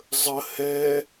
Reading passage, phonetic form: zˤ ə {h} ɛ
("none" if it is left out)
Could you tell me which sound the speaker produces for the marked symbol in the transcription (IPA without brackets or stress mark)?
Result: h